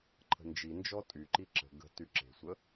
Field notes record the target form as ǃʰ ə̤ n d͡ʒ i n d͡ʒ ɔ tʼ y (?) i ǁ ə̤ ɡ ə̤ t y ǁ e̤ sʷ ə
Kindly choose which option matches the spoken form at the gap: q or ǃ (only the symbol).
ǃ